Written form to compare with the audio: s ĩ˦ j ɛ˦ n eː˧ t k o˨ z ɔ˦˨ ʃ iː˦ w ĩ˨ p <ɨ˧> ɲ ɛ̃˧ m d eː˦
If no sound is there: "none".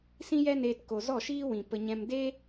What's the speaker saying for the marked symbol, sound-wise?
ə˧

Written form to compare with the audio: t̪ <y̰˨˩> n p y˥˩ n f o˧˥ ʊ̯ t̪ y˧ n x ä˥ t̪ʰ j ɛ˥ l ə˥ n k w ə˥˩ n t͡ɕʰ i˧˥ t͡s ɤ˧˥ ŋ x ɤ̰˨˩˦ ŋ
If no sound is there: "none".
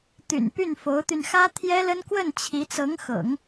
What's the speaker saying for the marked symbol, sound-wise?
y̰˨˩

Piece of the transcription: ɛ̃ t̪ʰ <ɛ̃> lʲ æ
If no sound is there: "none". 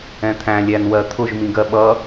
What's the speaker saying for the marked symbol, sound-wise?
æ̃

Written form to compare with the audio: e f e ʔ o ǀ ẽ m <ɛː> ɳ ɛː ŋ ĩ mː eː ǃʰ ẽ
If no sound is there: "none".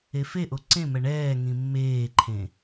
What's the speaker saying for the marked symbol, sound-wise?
ɛ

